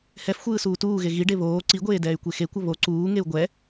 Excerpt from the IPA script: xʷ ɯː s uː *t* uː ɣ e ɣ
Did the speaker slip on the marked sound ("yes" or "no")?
no